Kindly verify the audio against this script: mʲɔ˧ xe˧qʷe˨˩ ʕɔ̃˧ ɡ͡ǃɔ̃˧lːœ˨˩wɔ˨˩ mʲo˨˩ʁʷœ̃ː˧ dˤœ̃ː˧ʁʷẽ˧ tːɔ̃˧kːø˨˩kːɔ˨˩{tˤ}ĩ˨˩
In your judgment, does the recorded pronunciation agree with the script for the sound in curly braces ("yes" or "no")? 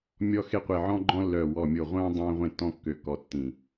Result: no